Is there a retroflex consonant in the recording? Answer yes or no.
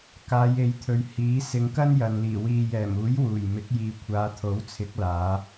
no